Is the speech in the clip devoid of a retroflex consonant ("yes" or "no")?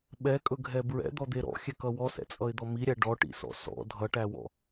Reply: no